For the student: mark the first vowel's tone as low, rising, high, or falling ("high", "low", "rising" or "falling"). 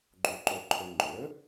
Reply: low